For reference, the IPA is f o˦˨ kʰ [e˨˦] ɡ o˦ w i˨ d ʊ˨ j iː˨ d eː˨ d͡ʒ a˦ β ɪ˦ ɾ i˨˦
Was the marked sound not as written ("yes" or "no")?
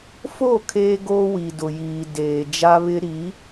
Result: yes